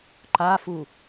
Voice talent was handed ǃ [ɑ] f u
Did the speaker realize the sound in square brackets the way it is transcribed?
no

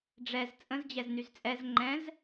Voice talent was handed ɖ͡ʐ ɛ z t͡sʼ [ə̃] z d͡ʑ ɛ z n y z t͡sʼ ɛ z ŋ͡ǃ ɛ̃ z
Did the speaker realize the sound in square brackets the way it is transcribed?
yes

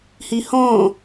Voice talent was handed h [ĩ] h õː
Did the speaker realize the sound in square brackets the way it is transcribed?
no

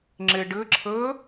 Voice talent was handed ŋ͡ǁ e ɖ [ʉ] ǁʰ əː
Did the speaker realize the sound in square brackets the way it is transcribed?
no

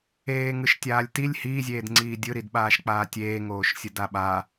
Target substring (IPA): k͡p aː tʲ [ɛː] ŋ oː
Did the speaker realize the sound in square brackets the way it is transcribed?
no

